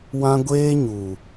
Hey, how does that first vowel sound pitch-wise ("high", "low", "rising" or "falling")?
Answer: high